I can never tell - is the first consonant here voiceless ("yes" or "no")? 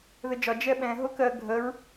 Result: no